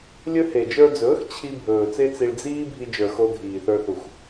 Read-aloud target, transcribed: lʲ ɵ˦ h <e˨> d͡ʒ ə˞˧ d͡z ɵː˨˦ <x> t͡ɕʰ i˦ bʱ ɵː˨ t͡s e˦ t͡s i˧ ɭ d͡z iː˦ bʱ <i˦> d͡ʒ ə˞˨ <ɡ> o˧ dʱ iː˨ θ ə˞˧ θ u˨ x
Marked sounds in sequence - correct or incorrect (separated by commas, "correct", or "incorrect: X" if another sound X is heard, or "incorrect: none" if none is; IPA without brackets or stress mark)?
correct, correct, incorrect: i˧, incorrect: x